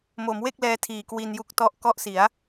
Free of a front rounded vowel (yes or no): yes